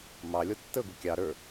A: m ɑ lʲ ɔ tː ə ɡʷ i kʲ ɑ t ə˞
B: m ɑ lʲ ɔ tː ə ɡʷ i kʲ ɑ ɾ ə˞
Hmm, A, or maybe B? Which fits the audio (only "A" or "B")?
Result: B